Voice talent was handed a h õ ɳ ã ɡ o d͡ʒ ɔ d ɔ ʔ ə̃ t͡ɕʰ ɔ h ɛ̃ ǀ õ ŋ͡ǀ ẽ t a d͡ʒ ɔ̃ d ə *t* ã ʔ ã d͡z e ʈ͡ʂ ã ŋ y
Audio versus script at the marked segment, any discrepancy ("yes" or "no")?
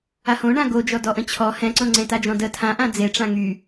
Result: yes